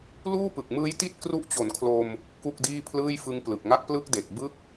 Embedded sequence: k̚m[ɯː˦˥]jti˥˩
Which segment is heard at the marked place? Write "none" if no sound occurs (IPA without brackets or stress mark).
ɯː˦˥